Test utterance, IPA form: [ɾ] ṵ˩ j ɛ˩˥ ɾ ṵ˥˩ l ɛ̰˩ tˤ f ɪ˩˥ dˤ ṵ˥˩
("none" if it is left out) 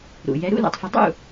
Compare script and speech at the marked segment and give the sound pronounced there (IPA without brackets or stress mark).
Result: ɾ